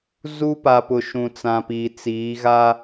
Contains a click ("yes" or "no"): no